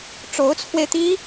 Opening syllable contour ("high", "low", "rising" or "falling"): rising